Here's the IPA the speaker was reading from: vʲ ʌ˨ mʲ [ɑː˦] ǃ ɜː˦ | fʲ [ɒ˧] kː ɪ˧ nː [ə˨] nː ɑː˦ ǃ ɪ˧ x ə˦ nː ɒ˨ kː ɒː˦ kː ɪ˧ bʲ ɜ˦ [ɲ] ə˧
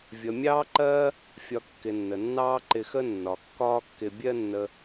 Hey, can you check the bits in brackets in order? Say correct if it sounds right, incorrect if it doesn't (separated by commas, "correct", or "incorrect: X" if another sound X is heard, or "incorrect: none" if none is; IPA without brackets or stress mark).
correct, correct, correct, incorrect: nː